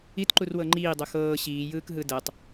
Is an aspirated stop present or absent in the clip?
absent